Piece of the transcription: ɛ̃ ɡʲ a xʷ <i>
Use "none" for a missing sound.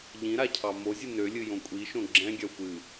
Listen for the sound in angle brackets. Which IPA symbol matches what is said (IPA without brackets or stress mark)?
ɨ